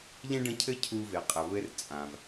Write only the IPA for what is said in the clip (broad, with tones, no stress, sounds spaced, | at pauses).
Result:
ʎ ẽ˥ ɖ ə̃˦ cʰ ɘ˥ cʰ u˦ v e˩ qʼ ə˩ β ɘ˦ r t͡sʼ ã˩ v